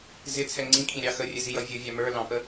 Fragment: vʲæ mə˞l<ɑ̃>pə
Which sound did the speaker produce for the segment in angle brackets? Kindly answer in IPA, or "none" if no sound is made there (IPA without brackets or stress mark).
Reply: ɑ̃